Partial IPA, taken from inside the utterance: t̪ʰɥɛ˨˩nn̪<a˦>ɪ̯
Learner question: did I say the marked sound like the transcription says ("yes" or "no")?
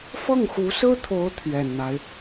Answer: yes